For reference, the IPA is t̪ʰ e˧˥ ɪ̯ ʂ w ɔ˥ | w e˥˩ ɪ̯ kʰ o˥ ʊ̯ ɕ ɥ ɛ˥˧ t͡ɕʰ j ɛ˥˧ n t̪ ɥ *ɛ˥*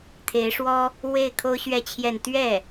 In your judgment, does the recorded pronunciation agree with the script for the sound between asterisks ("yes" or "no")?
no